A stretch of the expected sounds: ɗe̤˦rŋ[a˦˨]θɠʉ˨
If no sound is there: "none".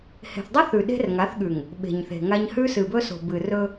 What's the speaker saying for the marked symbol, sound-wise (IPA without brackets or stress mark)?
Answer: a˨˦